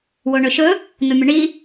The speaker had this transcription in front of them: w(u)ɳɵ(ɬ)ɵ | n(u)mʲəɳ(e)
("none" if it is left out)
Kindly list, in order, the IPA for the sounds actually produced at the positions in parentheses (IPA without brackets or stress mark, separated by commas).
o, ʃ, u, i